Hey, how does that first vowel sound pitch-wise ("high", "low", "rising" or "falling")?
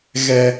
low